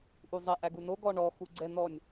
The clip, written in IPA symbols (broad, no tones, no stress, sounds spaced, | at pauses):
ʔ u zˤ ɛ ʔ æ ɡ u n o ɡ ɔ ɳ ɔ x u ɡ͡ǀ ɛ n̪ ɔ nʲ